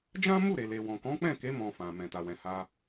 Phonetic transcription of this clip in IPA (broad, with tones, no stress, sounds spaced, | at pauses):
d͡ʒ ã˦ m u˦˨ ɾ e˨ l e˨ w ɔ̃˨ k ɔ̃˨˦ k͡p ɛ̃˦˨ k e˨˦ m ɔ̃˧ f ã˨ m ɛ̃˨ t a˨ w ɛ̃˨ h a˧